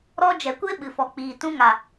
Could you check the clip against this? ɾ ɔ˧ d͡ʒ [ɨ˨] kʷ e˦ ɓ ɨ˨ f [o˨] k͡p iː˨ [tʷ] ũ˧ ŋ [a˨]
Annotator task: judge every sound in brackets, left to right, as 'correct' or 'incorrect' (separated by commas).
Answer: incorrect, incorrect, incorrect, correct